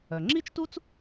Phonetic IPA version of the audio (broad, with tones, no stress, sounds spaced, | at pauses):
œ˩ ŋ͡ǁ i˥ t͡ʃ t u˥ t͡s